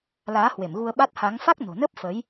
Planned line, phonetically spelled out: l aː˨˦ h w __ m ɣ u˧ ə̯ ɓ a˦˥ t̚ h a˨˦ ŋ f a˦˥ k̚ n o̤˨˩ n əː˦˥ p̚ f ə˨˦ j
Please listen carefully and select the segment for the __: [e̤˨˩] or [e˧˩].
e˧˩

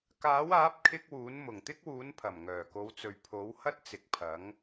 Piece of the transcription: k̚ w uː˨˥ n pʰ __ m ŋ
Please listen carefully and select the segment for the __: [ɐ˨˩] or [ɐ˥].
ɐ˨˩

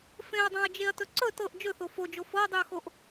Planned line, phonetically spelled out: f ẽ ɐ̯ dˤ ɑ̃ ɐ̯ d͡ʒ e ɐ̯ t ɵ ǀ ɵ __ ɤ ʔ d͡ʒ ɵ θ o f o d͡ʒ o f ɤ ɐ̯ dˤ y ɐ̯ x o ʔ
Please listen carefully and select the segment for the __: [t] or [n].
t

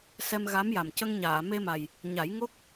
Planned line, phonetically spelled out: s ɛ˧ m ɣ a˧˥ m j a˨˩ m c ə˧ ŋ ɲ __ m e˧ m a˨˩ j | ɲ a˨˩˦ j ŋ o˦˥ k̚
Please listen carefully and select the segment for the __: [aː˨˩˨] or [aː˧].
aː˨˩˨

